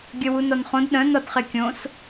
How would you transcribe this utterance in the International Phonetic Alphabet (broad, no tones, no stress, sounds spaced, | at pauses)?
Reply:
ɡʲ ə w u n ɒ n χ õ d ɗ ə̃ n ɒ d χ e kʲ õ s